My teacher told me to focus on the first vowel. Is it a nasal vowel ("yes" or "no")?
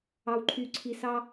no